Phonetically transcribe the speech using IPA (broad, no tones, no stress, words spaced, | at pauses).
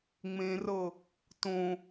ŋ͡mẽrɤ | tõ